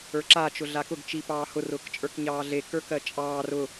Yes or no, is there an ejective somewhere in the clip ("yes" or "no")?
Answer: yes